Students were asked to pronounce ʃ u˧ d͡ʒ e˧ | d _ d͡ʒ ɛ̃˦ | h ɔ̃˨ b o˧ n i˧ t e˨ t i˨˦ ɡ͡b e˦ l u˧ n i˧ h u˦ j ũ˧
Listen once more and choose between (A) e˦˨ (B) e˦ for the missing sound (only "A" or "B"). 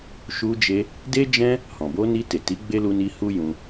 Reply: B